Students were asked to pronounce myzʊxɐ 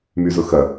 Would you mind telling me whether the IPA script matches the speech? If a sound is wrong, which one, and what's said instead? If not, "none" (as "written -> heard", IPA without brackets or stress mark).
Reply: none